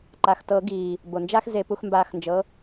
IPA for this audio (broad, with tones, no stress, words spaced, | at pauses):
ǃa˩˧˩xtɤ˨˩˦ ɡiː˩ | bo˩nd͡ʒa˥x ze˨˩˦pu˧xmbaː˧xnd͡ʒɤ˩˥